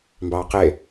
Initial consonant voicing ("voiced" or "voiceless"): voiced